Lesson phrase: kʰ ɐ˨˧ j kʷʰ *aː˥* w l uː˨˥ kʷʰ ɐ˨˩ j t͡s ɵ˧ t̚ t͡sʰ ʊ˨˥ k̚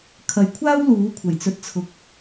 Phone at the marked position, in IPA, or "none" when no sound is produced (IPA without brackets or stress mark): aː˥